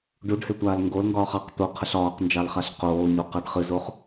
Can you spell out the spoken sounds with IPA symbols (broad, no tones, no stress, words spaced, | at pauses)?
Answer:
ɖuɖhetʷaːl ŋɡolŋɡɒːχ ɑq t̪oqʰəɬ ɒːqnd͡ʒɑlχaɬ qoːɲoqɑɖ χɨzoχ